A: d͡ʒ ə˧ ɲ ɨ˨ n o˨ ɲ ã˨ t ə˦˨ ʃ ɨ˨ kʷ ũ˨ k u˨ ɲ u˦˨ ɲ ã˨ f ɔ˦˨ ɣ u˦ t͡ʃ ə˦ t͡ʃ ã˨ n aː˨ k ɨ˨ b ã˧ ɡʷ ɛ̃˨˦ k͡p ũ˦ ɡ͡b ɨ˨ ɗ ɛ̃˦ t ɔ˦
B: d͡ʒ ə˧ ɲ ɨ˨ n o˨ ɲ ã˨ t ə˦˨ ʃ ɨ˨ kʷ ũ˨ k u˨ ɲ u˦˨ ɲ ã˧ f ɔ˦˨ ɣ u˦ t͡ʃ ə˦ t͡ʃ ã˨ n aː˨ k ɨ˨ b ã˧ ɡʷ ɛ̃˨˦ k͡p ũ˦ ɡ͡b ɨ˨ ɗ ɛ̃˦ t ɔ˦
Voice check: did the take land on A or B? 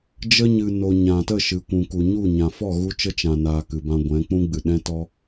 A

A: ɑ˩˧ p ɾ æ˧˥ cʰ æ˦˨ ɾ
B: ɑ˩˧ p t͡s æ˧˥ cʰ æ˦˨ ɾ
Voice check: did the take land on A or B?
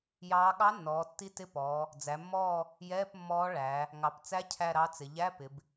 B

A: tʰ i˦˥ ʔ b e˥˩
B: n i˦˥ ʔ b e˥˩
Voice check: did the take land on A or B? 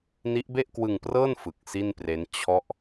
B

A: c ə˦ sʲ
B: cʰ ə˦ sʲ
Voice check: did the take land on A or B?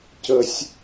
A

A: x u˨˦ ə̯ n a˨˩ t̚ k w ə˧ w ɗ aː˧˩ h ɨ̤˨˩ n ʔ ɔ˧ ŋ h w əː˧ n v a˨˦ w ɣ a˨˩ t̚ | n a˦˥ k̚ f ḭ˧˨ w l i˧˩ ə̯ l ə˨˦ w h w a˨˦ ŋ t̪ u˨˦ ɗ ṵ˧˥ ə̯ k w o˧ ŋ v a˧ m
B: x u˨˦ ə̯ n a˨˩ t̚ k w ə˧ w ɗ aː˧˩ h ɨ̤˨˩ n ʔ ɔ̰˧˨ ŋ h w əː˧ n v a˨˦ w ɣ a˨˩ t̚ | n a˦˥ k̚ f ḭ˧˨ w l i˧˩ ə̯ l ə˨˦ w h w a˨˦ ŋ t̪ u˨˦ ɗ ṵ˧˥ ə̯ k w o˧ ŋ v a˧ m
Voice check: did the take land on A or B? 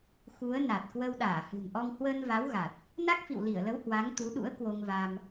A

